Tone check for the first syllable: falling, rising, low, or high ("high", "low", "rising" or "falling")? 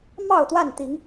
falling